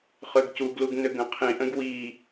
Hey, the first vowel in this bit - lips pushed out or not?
yes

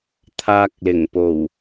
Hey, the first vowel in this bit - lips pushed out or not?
no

